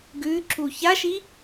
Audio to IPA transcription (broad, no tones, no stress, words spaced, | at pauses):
ɡʉ ǁuçaʃi